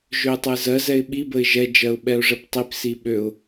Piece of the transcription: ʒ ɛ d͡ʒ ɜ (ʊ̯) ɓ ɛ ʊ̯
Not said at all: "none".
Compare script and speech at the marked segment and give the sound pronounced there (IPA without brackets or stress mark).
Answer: ʊ̯